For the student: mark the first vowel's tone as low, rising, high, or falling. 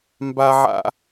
high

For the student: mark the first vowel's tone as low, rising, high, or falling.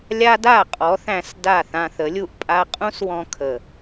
high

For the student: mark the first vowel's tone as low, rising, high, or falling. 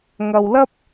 low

